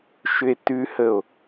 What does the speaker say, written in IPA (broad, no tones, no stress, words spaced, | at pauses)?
ʃʏe̯tʉhəo̯